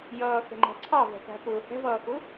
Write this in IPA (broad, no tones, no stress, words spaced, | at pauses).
jʌːxɛ̤ŋ͡ǃæ̤ ǀʰɑvɛ̤kæ̤pʊː hɛ̤vʌːxʊ